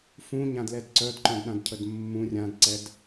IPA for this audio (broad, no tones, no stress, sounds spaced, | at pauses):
f ũ ɲ ã d l ɛ d ǀ œ d ǃ œ̃ d ɗ ã d cʰ ə d mː ũ rʲ ã d ǀ ɛ d